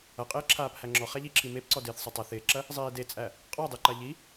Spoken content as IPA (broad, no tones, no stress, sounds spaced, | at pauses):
ɐ qʼ ɪː ǁʰ aː p h æ ŋ͡ǁ ɔ χ æ ʎ i ǁʰ i m e p ǀ ɔ d ɪː θ sˤ ɐ tˤ ɐ θ ɪː ǁ ɐ | zˤ iː d e t͡sʼ æ | qʼ ɔ dˤ e ǃ a ʎ i